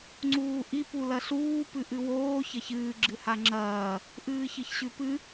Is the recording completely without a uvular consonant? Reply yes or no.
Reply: yes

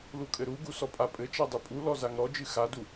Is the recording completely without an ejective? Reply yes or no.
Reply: no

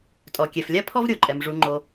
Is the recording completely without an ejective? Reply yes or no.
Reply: no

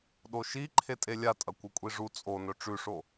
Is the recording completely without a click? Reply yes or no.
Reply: no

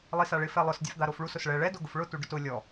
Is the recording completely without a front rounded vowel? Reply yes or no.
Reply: yes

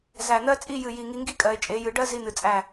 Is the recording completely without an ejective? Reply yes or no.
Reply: no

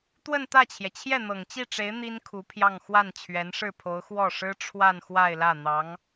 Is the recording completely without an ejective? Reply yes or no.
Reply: yes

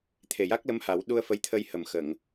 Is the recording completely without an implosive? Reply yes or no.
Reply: no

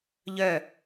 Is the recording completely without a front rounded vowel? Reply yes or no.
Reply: no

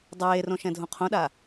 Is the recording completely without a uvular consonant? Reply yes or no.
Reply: no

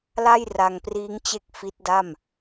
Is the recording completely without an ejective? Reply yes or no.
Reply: yes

